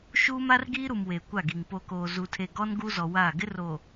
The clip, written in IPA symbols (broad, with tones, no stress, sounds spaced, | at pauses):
ʃ uː˦ m a˦ r ɡ iː˦ ɾ u˨ m w e˨ kʷ a˦˨ ɡ i˨ ŋ p o˨ k oː˨ z u˨ tʰ e˨ ɡ ɔ˦ n ɡ u˦ z ɔ˨ w aː˦˨ ɡ ɪ˦ r o˨